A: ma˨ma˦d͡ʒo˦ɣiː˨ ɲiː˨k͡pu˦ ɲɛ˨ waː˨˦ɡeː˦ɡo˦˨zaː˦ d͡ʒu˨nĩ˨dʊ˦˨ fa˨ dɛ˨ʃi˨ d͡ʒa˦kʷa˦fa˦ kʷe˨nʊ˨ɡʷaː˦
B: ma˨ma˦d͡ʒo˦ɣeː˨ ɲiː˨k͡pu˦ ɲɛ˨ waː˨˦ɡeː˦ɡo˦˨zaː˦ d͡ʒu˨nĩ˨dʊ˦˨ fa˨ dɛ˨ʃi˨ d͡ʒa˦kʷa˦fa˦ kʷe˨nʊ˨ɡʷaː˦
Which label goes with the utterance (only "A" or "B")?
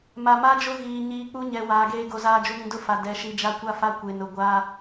A